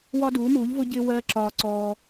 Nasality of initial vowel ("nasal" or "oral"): oral